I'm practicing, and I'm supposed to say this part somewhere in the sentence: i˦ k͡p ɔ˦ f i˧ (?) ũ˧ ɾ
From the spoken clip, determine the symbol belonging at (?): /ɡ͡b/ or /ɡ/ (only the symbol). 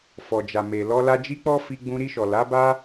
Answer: ɡ͡b